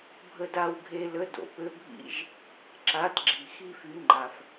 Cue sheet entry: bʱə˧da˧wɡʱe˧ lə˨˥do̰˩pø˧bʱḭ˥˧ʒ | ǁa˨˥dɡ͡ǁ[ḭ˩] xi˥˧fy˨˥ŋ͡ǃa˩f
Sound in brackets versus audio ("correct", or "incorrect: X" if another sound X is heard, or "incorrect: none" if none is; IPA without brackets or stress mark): incorrect: i˩